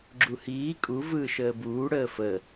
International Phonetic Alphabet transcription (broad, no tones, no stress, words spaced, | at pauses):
ɡ͡ǁuhiː kʼu vɯːʃəːbuː ɽəːfə